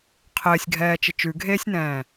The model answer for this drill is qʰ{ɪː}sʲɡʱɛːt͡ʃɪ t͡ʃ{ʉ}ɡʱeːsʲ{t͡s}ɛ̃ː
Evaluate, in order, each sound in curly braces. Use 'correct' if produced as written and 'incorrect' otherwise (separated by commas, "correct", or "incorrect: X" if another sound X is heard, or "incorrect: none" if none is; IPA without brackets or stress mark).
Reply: correct, correct, incorrect: n